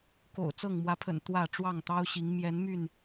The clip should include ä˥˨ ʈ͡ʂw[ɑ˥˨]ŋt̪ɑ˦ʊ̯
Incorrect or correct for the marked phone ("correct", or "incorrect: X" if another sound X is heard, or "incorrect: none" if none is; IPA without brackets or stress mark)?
correct